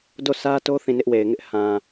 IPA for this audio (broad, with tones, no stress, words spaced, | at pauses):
do˦˨sʰä˦to˦ θĩ˦˨nɪ˦ʔwe˨ɪ̯ŋɪ˦ʔ hã˨